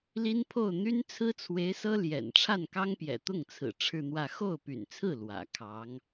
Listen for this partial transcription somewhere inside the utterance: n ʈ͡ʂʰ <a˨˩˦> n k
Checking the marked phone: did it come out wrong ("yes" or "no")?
yes